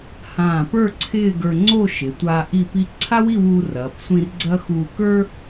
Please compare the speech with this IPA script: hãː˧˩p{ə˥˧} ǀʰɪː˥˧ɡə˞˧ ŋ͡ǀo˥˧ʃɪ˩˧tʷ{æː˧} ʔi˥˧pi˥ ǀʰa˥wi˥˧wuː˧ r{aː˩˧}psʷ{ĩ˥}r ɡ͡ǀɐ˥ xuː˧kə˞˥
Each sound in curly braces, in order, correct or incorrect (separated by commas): incorrect, incorrect, incorrect, incorrect